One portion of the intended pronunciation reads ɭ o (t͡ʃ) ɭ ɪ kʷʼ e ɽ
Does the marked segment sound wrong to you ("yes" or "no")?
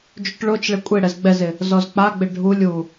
no